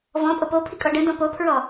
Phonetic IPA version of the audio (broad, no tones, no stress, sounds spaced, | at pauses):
v ɔ̃ pʼ o p o pʰ i kʼ ɔ ɖ ə̃ d ɔ̃ p o pʰ ɹ ɔ